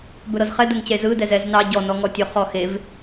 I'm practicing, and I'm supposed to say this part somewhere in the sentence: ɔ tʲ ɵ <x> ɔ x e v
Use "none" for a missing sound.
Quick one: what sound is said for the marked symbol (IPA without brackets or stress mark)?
χ